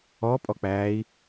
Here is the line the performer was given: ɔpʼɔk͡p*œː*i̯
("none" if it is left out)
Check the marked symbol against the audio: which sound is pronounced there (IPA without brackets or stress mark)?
æː